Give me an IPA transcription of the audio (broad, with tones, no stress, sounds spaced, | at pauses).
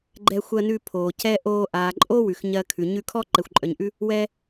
ɡ͡ǃ ɛ˧ xʷ ɜ˧ n ʉ˧ pʰ oː˨ c ɛ˦ ʔ oː˧ ʔ aː˨ ǃʼ o˦ w ʉ˨ x ɲ ɜ˧ kʰ ʉ˨ ɲ ʉ˧ kʰ ɔ˦ ǃ ɛ˨ xʷ ǃʼ œ˨ ɲ ʔ ʉ˦ | w ɛ˦